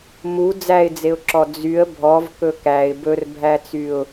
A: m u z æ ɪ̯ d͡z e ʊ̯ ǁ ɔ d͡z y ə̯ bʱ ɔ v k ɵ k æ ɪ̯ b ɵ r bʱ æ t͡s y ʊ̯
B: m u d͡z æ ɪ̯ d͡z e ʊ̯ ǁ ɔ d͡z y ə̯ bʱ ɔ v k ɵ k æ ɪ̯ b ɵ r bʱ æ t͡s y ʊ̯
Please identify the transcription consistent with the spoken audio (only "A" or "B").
B